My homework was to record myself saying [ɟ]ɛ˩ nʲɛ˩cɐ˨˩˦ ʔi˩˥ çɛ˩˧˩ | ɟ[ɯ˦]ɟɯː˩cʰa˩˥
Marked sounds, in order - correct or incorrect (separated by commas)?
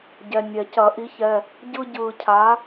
correct, correct